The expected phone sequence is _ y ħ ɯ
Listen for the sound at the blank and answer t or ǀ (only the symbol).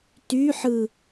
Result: t